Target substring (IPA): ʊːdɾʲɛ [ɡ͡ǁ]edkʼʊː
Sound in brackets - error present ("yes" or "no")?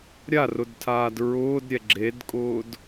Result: no